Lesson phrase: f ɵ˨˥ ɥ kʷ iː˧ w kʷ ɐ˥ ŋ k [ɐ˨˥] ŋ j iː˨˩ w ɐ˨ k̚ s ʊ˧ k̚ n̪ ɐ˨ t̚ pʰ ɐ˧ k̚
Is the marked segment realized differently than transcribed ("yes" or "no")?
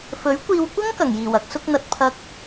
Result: yes